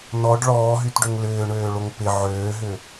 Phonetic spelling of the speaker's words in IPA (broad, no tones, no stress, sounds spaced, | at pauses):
n ɔ ɖ ɭ ɔː ɦ y t ɖ ø ŋ l ʏː ɳ øː ɭ o ŋ p ɪ ʕ øː ɦ ʏ